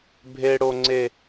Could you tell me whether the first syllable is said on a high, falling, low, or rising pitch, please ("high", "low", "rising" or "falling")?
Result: high